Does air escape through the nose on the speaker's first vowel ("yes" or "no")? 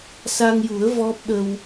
no